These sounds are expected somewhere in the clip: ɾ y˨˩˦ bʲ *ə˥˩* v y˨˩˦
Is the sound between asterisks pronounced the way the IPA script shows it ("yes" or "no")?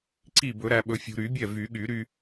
no